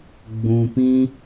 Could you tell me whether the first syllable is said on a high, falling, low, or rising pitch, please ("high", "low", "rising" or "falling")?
low